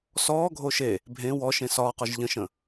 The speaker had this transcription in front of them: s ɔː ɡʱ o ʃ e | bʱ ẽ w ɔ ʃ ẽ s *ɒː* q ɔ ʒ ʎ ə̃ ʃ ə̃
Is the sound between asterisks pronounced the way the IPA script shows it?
yes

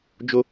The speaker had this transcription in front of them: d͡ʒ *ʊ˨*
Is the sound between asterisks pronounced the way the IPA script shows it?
no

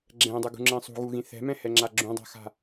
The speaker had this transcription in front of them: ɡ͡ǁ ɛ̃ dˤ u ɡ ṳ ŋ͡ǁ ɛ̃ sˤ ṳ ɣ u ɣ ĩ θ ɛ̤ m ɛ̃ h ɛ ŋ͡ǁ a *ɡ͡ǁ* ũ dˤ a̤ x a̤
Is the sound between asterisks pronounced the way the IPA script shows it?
yes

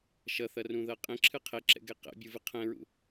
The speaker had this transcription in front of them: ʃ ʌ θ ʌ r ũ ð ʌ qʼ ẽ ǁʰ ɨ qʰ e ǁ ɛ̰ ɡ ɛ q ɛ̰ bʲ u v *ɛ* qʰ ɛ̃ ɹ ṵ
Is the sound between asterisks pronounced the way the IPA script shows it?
no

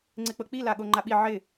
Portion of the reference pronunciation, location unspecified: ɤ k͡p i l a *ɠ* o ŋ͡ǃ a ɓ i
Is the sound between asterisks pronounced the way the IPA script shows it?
yes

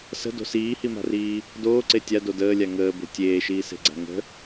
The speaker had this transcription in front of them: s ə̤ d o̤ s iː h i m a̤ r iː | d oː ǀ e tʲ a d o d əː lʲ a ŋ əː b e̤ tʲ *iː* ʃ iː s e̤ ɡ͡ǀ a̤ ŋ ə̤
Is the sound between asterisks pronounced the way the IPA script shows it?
no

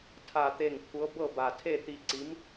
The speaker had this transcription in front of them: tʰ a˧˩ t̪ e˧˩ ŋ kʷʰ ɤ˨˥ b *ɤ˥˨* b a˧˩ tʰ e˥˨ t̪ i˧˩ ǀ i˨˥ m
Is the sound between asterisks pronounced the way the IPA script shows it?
yes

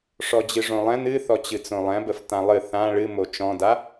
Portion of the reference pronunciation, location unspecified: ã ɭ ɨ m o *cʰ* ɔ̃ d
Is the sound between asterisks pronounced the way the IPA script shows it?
no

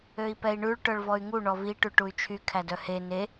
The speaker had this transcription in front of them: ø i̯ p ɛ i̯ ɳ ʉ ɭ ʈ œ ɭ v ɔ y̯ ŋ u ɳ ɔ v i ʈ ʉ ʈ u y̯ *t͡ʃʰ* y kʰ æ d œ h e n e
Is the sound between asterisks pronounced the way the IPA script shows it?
yes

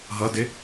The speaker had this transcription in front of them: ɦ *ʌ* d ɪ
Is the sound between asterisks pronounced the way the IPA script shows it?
yes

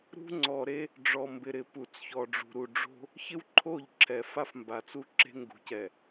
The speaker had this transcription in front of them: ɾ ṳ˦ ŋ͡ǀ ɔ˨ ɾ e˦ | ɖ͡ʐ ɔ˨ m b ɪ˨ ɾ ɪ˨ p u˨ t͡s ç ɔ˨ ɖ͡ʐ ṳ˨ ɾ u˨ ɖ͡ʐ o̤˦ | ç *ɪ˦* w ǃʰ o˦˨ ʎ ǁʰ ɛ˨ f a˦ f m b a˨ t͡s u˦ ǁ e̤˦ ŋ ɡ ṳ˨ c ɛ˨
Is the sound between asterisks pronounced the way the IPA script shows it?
yes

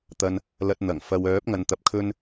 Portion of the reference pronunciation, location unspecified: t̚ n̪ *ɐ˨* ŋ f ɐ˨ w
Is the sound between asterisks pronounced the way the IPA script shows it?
no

